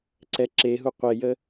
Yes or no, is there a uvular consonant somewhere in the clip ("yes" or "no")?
yes